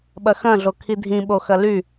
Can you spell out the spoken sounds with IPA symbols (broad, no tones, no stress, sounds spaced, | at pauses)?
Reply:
ɓ ɐ x ɐ̃ ɮ o kʰ i dʱ ĩ ɓ o x ɐ l y